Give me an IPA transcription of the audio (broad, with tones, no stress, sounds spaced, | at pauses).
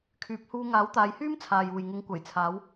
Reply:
kʰ yː˨˥ p̚ h uː˧ ŋ aː˨˥ w t̪ aː˨˧ j h yː˥ m t͡sʰ aː˨ j uː˨ j ŋ ʊ˨˧ ŋ kʷ ɐ˨˩ j t͡sʰ aː˨˧ w